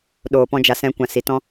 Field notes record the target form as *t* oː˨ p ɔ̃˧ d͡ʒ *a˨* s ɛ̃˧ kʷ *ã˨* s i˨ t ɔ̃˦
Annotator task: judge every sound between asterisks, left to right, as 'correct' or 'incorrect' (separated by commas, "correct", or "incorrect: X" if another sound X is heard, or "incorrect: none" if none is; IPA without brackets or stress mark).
incorrect: ɗ, correct, correct